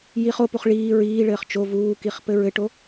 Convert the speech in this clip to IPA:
j i χ o p u χ ɭ iː ɹ iː ɭ ɘː χ t͡ʃ o v uː k i χ p ɘ ɹ ɘ ʈ o

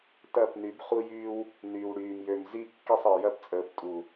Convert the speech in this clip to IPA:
t ɐː˦˨ p n y˨˦ b χ u˦ j yː˦ w | n yː˨ w ɽ yː˨ m j ø˨ m z i˦˨ kː i˦˨ sˤ əː˨ j ɐ˦ p t͡sʼ əː˨ p tʼ u˨

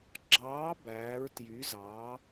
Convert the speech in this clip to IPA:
ɡ͡ǁ ɑː˨˥ b æː˩˧ ɹ t j y˩˧ z ɑː˩˧

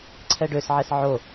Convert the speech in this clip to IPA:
ǀʰ ɛ ɖ ø s ʕ ɛ s ʕ o

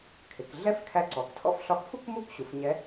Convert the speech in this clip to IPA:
kʰ ɪ˩˧ k ɮ ɛ˥ f kʰ æ˧˥ ǀ ɔ˩˧ k tʰ ɔ̰˥ f ɬ ɒ˧˥ k f u˥ k m u˥ k ɕ u˩˧ f ɲ ɛ˧˥

